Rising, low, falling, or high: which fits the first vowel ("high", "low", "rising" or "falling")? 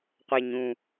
high